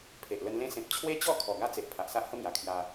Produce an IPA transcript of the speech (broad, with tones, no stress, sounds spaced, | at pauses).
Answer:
pʰ e˨ ʔ l ə˧ n l ẽ˦ s ẽ˨ p̚ t͡ɕʰ w e˦ t͡ɕ ɔ˥˧ kʰ ɔ˨˩ ɡ a˦ t͡s e˨ ʔ pʰ a˨ ʔ s a˦ ʔ h ə˦ m j a˨˩ kʰ j a˧